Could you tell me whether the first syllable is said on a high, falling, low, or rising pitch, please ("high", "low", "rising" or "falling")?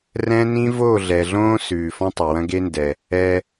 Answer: high